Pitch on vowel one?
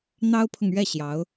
high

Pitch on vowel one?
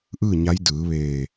falling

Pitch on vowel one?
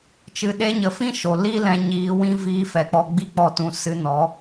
low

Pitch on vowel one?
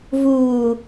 low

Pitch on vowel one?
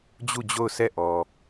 falling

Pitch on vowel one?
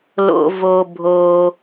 low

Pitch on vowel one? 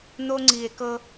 high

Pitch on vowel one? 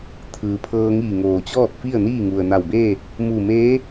low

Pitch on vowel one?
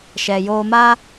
low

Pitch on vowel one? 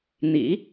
low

